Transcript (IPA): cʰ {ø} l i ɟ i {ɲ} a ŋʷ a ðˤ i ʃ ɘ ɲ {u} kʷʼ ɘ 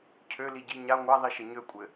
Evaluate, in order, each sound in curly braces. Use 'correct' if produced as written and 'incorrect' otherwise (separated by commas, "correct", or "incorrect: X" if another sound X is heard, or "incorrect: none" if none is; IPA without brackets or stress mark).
correct, correct, incorrect: ø